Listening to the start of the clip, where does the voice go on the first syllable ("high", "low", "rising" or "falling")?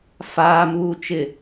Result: low